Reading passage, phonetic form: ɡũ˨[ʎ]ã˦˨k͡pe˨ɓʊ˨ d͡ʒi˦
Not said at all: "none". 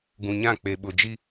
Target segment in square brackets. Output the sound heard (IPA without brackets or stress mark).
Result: ɲ